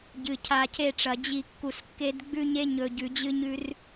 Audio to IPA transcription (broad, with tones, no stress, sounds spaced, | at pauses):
ɟ ɨ˨ cʰ a˨ cʰ e˦˨ ʈ͡ʂ ɐ˨ d͡ʑ i˦˨ kː u˨ s kː e˦ d ɡ͡b ʉ˦ ɲ e˦ ɲ ɵ˨ ɟ ʉ˨ d͡ʑ ɨ˦ ɲ ʉ˦ r